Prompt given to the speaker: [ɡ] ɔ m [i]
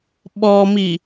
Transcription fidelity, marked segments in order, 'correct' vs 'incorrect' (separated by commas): incorrect, correct